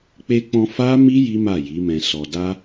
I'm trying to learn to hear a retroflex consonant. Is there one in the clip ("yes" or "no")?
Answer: no